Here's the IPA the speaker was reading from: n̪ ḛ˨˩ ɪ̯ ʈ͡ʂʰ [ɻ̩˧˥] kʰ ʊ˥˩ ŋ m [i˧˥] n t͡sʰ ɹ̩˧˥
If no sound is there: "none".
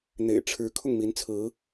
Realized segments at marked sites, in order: ɻ̩˧˥, i˧˥

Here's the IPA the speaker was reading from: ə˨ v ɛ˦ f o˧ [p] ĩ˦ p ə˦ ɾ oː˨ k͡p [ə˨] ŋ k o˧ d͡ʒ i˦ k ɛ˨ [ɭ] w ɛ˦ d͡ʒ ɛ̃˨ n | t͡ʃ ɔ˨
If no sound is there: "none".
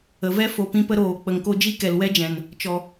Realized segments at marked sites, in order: p, ə˨, l

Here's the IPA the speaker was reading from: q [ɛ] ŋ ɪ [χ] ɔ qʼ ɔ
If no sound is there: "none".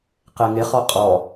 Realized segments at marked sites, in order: ɛ, χ

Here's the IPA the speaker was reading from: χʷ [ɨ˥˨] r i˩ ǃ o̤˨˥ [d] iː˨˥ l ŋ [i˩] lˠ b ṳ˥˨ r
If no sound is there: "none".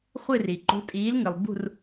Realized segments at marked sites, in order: ɨ˥˨, tʼ, ɨ˩

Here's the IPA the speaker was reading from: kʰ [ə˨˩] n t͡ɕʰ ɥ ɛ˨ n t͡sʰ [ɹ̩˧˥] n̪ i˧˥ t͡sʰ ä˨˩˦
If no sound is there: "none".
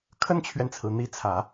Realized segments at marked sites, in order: ə˥, ɹ̩˩

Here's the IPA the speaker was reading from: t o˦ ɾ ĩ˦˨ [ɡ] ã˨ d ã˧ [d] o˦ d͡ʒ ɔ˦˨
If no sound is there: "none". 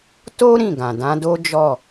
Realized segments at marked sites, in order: ɡ, d

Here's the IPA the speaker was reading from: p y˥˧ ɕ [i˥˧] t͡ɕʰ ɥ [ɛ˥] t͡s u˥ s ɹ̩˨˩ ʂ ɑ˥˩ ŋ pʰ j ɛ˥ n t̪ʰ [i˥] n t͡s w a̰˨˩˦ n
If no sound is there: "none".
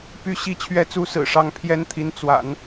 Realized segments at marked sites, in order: i˥˧, ɛ˥˩, i˧˥

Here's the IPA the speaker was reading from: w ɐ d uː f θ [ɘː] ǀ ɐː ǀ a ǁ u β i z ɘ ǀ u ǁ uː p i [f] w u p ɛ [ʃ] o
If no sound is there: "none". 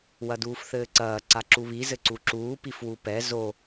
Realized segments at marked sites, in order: ɘː, f, z

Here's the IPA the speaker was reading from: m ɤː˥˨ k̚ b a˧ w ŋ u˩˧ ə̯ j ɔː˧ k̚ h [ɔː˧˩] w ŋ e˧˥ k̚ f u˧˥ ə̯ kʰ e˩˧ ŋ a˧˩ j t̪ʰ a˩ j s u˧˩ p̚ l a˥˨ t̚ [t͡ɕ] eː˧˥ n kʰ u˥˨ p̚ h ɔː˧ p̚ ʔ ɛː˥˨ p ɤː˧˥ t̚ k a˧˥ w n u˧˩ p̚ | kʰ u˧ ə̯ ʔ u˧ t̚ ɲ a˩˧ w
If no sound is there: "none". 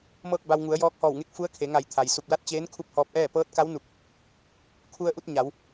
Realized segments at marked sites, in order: ɔː˧˩, t͡ɕ

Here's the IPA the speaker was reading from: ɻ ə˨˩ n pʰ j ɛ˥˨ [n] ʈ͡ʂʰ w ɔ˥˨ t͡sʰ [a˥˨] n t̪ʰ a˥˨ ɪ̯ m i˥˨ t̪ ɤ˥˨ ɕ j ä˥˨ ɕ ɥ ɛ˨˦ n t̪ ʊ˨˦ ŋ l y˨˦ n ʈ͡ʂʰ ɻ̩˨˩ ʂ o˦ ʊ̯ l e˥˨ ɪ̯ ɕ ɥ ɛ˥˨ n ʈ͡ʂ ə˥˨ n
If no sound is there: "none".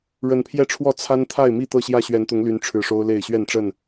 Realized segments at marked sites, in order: none, a˦

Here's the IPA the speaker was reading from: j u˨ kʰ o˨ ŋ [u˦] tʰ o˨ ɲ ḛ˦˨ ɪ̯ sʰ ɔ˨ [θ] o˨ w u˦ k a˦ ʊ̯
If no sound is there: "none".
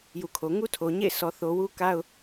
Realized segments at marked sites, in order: u˦, θ

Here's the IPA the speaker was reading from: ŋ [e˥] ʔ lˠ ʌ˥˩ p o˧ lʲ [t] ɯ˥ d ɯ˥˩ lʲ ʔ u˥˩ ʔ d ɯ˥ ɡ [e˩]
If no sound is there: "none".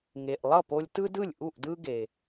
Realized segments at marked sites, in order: e˩, t, e˩

